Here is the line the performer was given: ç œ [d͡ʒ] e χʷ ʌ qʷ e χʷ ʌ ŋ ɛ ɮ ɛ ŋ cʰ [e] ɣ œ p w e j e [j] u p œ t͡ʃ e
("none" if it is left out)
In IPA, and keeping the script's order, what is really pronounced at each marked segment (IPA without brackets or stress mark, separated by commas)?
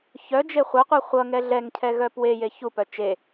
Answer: d͡ʒ, ɛ, ç